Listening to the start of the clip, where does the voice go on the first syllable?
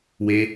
high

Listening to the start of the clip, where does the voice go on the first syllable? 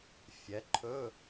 rising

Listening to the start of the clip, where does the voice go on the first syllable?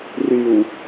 low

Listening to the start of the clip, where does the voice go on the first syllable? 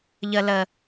low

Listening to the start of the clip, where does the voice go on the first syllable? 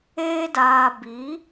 high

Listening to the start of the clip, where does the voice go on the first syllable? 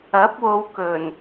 rising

